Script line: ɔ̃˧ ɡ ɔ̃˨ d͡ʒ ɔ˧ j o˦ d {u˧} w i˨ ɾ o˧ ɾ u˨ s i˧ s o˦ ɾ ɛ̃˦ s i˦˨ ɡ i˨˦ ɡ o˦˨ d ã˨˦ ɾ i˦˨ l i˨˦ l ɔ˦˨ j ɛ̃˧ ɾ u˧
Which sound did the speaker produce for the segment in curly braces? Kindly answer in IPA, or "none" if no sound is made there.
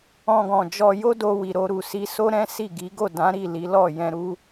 o˧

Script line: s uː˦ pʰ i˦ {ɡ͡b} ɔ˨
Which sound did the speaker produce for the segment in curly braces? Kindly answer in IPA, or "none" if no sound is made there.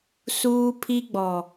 ɡ͡b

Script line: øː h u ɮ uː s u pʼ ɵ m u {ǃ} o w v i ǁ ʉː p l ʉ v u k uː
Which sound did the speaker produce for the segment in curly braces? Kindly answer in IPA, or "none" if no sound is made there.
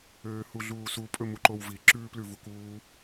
ǃ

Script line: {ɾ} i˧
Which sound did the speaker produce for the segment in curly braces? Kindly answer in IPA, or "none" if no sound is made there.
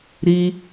ɾ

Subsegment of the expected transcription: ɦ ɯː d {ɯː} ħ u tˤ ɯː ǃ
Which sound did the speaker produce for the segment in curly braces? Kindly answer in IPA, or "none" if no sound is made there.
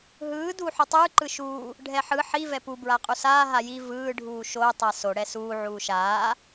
uː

